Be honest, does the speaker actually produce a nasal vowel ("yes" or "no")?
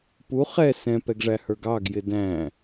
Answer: yes